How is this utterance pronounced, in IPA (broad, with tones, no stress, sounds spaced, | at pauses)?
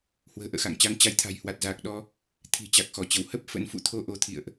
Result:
h w ə̤ː˨˩ ʔ ə̰ː˧˨ x a̰˧˨ ŋ t͡ɕ a˨˦ ŋ t͡ɕ a˨˦ j t̪ʰ a̤˨˩ j h w a˨˩ t̚ z aː˨˩ k̚ ɗ ɔ˧ | t̪ʰ i̤˨˩ t͡ɕ a˨˩ k̚ x ɔ˧˩ t͡ɕ ə˧˩ w h ə˦˥ p̚ f ə̰˧˥ n f ṵ˧˨ t̪ʰ o˧ ʔ o˨˦ t̪ʰ ḭ˧˨ ə̯ ʔ